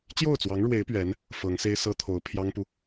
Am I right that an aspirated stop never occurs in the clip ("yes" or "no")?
no